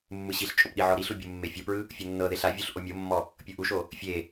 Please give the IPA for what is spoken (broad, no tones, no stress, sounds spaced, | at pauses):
mː ɯ ɕ i ɬ t͡ʃʼ o p ɗ i ʕ ɔ ɾ i ɬ u bʲ u mː e fʲ ɤ p ɹ ɯ | fʲ o nː ɤ ð e ɬ a vʲ u ɬ ʔ o mʲ o mː ɔ | pʲ ɤ ʔ u ʃ o | fʲ e